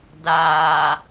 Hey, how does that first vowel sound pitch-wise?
low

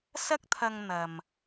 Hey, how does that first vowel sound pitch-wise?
high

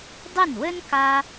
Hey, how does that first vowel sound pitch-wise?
falling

